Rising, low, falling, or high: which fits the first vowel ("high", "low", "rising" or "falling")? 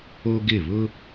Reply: high